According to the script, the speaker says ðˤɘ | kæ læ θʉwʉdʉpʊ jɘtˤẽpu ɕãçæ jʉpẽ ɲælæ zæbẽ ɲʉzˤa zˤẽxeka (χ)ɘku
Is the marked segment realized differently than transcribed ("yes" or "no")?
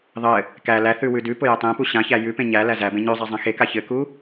yes